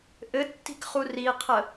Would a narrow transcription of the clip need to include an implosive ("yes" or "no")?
no